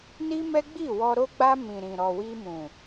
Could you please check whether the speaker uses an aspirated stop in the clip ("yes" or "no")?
no